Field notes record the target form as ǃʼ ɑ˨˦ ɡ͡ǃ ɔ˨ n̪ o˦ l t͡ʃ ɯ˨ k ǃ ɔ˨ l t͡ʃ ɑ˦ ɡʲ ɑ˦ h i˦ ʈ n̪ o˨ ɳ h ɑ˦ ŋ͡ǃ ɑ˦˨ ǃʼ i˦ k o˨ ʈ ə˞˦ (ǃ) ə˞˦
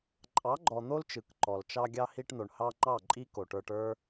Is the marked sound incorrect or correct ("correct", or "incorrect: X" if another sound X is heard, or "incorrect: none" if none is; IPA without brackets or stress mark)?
incorrect: ʈ